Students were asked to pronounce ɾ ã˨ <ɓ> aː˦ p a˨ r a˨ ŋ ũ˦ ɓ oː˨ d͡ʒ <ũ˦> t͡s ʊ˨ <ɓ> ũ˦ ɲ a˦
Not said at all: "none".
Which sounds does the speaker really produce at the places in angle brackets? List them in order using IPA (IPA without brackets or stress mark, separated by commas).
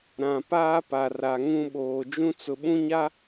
p, ũ˦, ɓ